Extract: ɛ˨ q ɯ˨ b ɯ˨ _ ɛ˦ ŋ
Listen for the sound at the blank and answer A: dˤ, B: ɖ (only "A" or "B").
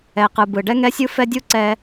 B